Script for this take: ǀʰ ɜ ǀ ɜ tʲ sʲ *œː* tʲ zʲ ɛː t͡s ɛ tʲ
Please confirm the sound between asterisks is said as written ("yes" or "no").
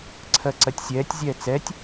no